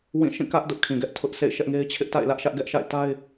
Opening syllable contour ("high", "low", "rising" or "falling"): falling